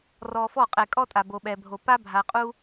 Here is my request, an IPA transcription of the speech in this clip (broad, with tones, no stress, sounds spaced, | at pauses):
r ɔ˨ f ɔ˦˨ qʼ ɛ˨ kʼ ɔ˦ tʼ a˨ b o˨ ɓ ɛ˨ bʱ o˨ p a˦ bʱ a˨ qʼ u˦